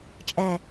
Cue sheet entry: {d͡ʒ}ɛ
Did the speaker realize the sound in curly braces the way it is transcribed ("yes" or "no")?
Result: no